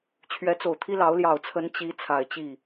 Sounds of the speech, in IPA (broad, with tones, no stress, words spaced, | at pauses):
t͡ɕʰɥɛ˧˥t͡so˨˩ʊ̯t̪ʰi˥lɑ˧˥ʊ̯ ljɑ˨˩ʊ̯t͡sʰə˧˥n t͡ɕi˧˥ t͡sʰa˨˩ɪ̯t͡ɕi˥˩